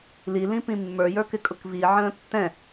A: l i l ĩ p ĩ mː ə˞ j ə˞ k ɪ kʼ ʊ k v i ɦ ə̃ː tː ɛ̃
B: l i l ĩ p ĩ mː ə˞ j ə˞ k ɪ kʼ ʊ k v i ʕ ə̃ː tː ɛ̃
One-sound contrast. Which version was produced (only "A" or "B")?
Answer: B